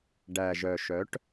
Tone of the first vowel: low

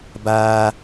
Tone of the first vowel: high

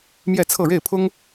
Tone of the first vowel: falling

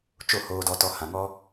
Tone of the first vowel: falling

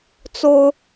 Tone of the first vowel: high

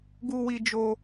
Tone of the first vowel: high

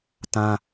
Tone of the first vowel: high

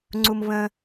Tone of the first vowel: high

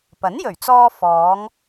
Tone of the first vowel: rising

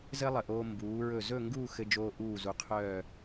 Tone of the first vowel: high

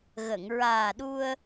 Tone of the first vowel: low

